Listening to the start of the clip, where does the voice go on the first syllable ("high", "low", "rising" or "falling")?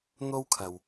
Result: high